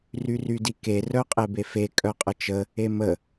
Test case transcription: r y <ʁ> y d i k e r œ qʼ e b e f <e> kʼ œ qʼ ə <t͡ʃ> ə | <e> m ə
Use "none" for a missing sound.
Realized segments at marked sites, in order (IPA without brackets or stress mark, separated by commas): r, e, t͡ʃ, e